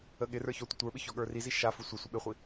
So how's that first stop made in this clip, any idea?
implosive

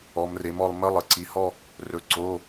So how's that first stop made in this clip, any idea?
click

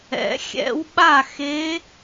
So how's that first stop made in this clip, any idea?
implosive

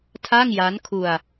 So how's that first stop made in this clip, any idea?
aspirated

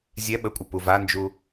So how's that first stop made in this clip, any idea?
implosive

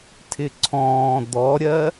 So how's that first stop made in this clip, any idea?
aspirated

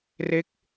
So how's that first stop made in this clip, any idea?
plain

